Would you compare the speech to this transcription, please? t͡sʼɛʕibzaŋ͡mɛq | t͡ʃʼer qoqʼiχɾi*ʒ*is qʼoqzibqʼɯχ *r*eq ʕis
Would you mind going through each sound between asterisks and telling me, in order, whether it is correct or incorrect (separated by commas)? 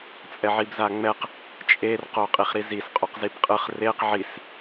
incorrect, correct